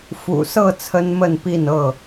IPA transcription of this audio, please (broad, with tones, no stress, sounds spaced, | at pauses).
f ṵ˨˩ s ɤ˥˨ t͡sʰ ə˦ n m ə˥˨ n p i˥˨ n ɤ˥˨